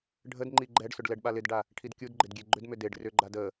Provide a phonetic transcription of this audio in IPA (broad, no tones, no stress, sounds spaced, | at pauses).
ɖʱ ə d ŋ͡ǃ i ɡ͡ǃ ɛ ɖ s ʏ ɖ l ɛ ɖ ɓ a l ɪ d ɖ a | ʈʰ i d kʲ u d ɡ͡ǃ ɪ d ɡʲ e ɡ͡ǃ ʏ d m ʏ d e ɖ r ʏ ɡ͡ǃ a d ə